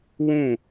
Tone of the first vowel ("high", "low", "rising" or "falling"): falling